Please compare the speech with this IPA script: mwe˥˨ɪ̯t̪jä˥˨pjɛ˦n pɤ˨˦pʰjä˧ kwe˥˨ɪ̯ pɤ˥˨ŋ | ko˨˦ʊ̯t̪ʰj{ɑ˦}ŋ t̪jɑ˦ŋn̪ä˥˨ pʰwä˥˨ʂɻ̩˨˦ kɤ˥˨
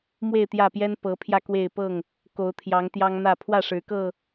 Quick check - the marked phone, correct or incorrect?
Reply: incorrect